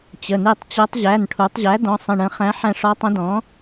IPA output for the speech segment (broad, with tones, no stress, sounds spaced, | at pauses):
t͡ɕ ə˩˧˩ n e˦˨ tˤ t͡ɕ ɤ˧˥ tˤ ʑ æ˩˧˩ n ʈʰ u˩˧ tˤ ʑ æ˩˥ d ɔ̃˩˧˩ sˤ ə̃˦˨ ɳ ə̃˧˥ χ æ̃˧˥ ħ æ̃˦˨ ʂ ɔ˧˥ tˤ ə̃˧˥ d ɔ̃˩˥